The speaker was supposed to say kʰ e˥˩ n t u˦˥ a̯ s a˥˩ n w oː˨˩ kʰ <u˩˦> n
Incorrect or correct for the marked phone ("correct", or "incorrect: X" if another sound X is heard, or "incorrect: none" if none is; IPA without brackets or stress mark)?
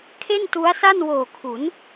correct